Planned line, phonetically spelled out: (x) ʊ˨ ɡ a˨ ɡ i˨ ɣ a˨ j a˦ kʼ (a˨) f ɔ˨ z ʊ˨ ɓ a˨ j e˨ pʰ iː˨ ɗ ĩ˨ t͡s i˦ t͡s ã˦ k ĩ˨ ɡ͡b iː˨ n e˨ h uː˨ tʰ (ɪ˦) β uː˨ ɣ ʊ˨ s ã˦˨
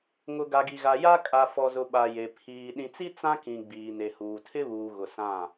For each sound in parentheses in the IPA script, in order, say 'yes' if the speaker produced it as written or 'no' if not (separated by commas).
no, yes, yes